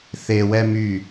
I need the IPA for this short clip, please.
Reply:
θ e w ɛ m y

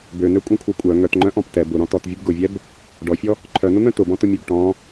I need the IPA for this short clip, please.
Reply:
b ø n ø kʷʼ œ̃ kʷʰ œ kʷʼ œ ŋ œ t ŋ͡ǃ œ̃ ʔ ɔ̃ p t ɛ b ʊ ɾ ɔ̃ t ɔ t vʲ ʊ b ɡ ʊ vʲ ɛ b | ɖ ɔ fʲ ɔ | ǃʰ œ n ʊ n̪ œ̃ t ʊ b ɔ̃ t ʊ mʲ ø b ʈ ɔ̃

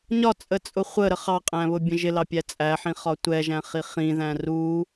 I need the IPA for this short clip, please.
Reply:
ɲ ɒ t͡sʼ ə t͡sʼ ʊ χʷ ə ɾ ə χ ɑ qʼ æ̃ β ʊ bʲ ə̃ ʒ ɪ l ɑ pʲ æ t͡sʼ æ ħ ĩ χ ɒ tʷ ɛ ʒ æ̃ χ i χ ĩ ð æ̃ r u

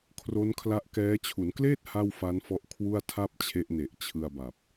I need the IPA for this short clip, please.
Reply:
kʰ r o˦˥ n kʰ l a˦˥ ʔ k ɛː˦˥ t͡ɕʰ u˩˦ n k l eː˥˩ t̚ h a˥˩ w f a˦˥ n f ɔ˦˥ ʔ kʰ w u˥˩ a̯ tʰ a˥˩ p̚ t͡ɕʰ e˦˥ ʔ n e˨˩ ʔ t͡ɕʰ ɯ˧ a̯ b a˨˩ p̚

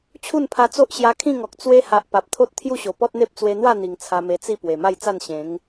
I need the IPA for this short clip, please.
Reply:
t͡ɕʰ u˥˧ n pʰ a˧ t͡s o˦ ʔ ɕ j a˧ kʰ ĩ˥˧ ŋ ɔ˨ k̚ t͡s w e˧ h a˨ ʔ p a˨ p̚ t̪ʰ o˦ t̚ t̪ʰ j u˥˧ ɕ o˨˩ p ɔ˦ t̚ n̪ e˦ p̚ t͡s w e˧ n̪ w a˥˧ n̪ i˨˩ ŋ t͡sʰ a˧ m e˧ t͡s i˥˧ p w e˨˩ m a˥˧ j t͡s a˥˧ n ɕ ẽ˨˦ ŋ

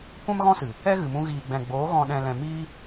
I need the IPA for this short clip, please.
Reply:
kʷ ã˦ m ɣ ɔ̃˦ s ɨ˨ | ɛ˦ ɣ ɨ˨ m ũ˧ ɣ iː˨ ɡ͡b ɛ̃˨ ɡ͡b oː˨˦ ɣ ɔ̃˨ ɗ ɛ̃˨ l ɛ̃˨ m iː˦

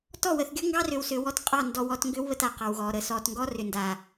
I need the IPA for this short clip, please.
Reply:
t ɔ˦˨ w ə˨ θ ɡʲ ɔ˦ ŋ ɡ ɑ˦ r ʏ˨ w s ʏ˨ w ɔ˧ t qʼ ɑ˦˨ n d ɔ˨ w ɔ˦˨ t ŋ ɡ ʏ˦ w β ə˧ t a˨ q ɑ˨ w ɣ ɔ˨ ɾ ə˨ s ɔ˨ t ŋ ɡ ɔ˦ r ʏ˨ n d a˨

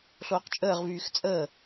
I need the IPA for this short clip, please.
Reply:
ɬ oː q t͡ʃʼ əː ʁ v yː x t͡sʼ əː

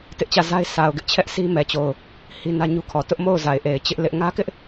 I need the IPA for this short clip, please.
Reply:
t ɪ˦ ʔ t͡ɕ ä˦˨ z a˦ ɪ̯ sʰ a˨ ʊ̯ ɡ ɪ˦ ʔ t͡ɕʰ ɛ˦ ʔ s i˦ m ɛ˨ t͡ɕ o˨ ʊ̯ | h i˦ n ä˦ ɲ u˦ kʰ ɔ˨ t ʊ˦ ʔ m o˦˨ ʊ̯ z a˨ ɪ̯ ʔ e˨ ɪ̯ t͡ɕ ɪ˦ ʔ l ɪ˦ ʔ ŋ ä˦ k ɪ˦ ʔ

